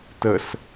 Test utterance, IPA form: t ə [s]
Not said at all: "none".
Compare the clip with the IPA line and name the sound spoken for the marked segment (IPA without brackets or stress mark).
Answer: s